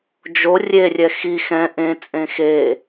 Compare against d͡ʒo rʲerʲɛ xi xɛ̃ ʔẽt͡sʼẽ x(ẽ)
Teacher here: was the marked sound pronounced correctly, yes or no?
no